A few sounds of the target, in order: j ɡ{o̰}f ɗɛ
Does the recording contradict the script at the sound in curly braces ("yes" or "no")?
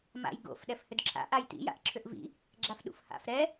no